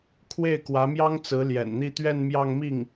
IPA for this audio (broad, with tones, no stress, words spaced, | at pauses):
kʰwe˥˩ɪ̯kwä˧˥mjɑ˥ŋt͡sɹ̩˧˥ ljɛ̰˨˩nn̪i˥˧ t̪ɥɛ˥˧nmjɑ˥˧ŋmi˥˩ŋ